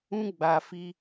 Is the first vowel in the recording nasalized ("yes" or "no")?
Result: yes